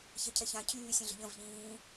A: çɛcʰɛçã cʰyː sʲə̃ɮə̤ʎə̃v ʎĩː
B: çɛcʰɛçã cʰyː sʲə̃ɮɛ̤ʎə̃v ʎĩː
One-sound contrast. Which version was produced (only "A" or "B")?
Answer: A